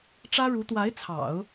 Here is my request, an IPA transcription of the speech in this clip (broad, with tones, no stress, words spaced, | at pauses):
ʈ͡ʂä˥ɻu˧˥ t̪wa˧˥ɪ̯t͡sʰɑ̰˨˩˦ʊ̯